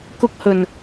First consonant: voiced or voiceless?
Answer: voiceless